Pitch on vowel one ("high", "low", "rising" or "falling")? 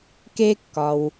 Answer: high